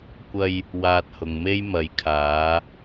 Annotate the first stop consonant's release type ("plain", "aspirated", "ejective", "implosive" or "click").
plain